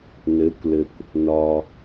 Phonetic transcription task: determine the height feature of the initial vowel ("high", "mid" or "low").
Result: mid